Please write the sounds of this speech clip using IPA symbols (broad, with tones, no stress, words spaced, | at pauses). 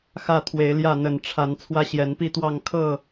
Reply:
xä˥˨t̪ʰwe˨˦ɪ̯ljä˥˨ n̪ə˨˩nʈ͡ʂʰa˨˦n t͡sʰwä˦ɕjɛ˨˦npi˥˨t̪wɑ˥˨ŋ kʰɤ˥˨